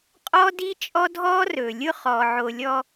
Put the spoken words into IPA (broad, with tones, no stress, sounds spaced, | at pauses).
qʼ ɔ˦ d i˦ t͡ʃʼ ɔ˦ dʱ ɔː˦ r ɵː˨ lʲ ʊ˦ χ ɔː˨ ʕ o˧ lʲ ɔ˧